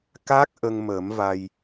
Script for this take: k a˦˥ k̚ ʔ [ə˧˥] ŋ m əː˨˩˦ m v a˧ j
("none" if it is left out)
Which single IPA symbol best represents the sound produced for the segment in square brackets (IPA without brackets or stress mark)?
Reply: ə˧